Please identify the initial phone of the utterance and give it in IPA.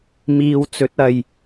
m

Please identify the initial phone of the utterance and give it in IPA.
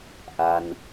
ʔ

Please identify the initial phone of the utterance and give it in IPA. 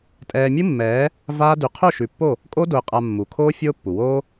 tʼ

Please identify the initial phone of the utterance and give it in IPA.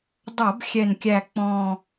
dˤ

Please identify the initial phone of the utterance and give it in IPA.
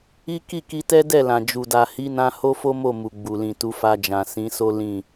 i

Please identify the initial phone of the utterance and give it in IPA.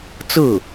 t͡s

